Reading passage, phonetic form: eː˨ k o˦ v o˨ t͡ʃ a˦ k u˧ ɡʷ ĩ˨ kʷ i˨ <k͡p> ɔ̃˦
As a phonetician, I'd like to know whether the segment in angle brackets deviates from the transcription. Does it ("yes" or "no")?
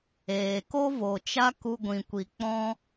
no